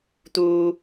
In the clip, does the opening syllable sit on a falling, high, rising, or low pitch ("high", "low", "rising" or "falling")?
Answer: high